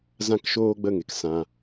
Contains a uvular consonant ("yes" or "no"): no